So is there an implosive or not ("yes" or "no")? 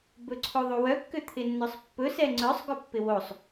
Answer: no